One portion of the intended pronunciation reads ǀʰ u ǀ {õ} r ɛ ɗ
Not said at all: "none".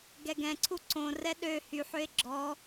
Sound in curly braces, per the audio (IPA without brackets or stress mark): õ